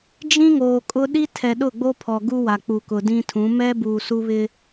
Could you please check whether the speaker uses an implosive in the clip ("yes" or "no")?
yes